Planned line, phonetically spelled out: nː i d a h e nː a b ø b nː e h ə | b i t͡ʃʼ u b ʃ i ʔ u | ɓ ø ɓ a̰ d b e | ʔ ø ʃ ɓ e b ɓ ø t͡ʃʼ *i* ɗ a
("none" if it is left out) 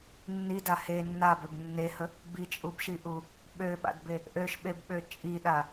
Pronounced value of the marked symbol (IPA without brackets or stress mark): i